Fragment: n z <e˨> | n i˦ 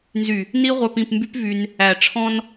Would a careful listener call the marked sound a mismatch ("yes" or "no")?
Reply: yes